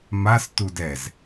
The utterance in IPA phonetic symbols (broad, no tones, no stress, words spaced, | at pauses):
mas tudɛz